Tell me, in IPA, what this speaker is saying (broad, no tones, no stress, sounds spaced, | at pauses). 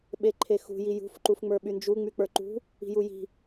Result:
ɓ e ǃʰ e x ṳ j i j ṳ f ǃ u f ŋ͡m ə˞ ɓ y n d͡ʒ u ŋ͡m y k͡p ə˞ ǃ ṳ | i̤ j u j i̤